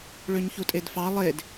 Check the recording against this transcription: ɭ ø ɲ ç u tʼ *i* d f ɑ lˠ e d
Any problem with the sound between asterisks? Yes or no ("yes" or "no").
yes